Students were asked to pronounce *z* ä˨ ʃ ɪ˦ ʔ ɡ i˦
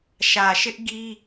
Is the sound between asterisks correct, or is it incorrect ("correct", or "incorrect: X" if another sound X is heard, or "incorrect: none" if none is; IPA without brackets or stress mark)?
incorrect: ʃ